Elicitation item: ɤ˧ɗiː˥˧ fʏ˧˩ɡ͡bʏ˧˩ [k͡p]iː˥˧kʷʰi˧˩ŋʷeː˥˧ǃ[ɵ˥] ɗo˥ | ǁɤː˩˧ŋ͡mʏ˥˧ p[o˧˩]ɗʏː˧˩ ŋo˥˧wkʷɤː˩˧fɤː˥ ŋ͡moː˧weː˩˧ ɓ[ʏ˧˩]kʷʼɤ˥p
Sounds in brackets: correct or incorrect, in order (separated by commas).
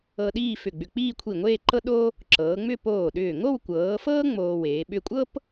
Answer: correct, incorrect, incorrect, incorrect